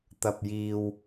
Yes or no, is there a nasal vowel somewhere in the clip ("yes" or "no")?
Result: no